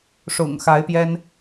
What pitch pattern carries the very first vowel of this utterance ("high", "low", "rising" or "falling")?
low